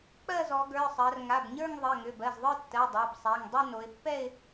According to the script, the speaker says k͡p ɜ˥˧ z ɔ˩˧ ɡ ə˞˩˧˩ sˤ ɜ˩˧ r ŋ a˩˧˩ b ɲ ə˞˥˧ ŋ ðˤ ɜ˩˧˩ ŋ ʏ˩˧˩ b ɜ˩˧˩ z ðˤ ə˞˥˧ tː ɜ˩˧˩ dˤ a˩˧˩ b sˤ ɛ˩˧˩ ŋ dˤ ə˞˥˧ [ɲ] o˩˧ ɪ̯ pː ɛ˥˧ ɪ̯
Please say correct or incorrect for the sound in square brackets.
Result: incorrect